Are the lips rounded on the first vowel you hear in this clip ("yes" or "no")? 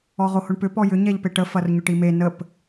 yes